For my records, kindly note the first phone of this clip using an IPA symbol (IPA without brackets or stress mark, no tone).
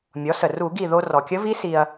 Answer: mʲ